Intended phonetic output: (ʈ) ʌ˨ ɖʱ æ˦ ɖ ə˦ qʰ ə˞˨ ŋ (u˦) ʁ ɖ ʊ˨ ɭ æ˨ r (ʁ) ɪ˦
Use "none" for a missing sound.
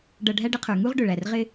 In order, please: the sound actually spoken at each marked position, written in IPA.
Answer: ɖ, u˦, ʁ

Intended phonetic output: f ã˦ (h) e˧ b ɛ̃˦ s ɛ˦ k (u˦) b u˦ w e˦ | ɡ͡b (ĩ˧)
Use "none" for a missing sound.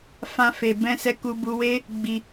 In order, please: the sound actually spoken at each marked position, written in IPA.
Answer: f, u˦, i˧

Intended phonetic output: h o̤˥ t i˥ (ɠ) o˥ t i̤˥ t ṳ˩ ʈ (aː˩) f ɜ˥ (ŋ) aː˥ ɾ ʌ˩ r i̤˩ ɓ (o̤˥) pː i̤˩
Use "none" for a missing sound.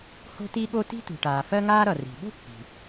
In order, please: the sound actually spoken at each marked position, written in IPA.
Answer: ɠ, aː˩, ŋ, o̤˥

